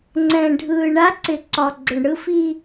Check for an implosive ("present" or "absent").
absent